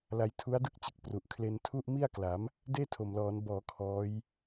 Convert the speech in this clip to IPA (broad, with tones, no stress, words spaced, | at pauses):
la˧jtʰu˦˥a̯dɯ˥˩k̚t͡ɕɯ˨˩k̚ pru˨˩ʔkʰle˧n tʰu˥˩ʔmi˥˩a̯kla˩˦m | deː˥˩tʰo˨˩mlɔː˩˦n bɔː˩˦ kʰɔː˦˥j